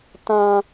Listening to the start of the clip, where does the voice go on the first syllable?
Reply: high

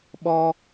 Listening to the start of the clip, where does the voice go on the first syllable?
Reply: high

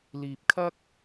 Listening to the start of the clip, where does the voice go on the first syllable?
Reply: low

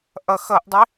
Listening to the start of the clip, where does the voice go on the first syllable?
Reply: low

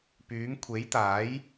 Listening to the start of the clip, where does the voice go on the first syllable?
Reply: rising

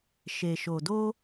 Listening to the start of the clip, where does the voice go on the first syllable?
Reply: low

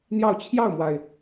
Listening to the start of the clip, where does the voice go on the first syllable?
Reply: falling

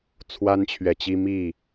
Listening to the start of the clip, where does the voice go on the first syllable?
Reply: high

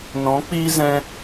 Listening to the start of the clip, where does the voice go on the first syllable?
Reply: rising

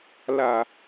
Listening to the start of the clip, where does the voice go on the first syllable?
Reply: low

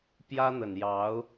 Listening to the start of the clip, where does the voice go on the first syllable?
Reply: high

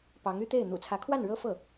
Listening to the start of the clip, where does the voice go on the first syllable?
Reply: rising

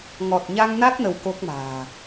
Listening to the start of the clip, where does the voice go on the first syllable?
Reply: low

